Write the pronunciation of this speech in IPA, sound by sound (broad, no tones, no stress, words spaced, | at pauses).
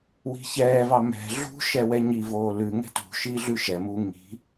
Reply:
wi̤çɛːvɑ mɛ̤ ɮṳ ʃɛwɛɲivoː lʉ ŋɛ̤tṳʃi ɮʉʃɛmuː ŋi̤